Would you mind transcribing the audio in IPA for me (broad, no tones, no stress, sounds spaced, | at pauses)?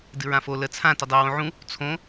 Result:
d ɨ ɹ ã f o l ə t͡sʰ ã t ə dˤ o w õ ʕ ũ | t͡sʰ õ